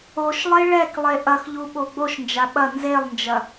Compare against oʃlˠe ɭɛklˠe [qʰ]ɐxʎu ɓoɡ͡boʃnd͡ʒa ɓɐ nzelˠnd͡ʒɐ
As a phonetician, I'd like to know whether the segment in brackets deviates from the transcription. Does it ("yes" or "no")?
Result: yes